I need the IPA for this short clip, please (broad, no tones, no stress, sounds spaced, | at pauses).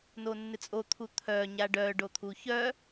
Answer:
n o nː ɪ t͡sʼ o t̪ʰ u t̪ʰ œ ɲ a ɖ œ ɖ o t̪ʰ u ç œ